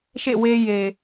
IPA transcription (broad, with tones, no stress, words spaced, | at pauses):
ʃḛ˦˨we˦je˨